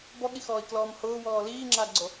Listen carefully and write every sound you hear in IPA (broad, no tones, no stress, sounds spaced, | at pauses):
b ɔ ɠ i x ɔː i̯ k l ɔː m h ʊː w ɔː l iː ŋ͡ǁ aː ɡ͡ǀ o